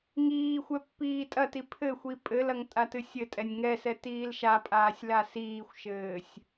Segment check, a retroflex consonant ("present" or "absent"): absent